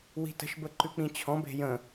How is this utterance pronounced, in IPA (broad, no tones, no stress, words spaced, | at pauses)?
wi̤tə̤ʃbə ǃʉk͡pĩt͡ɕʰɔ̃be̤ jə̃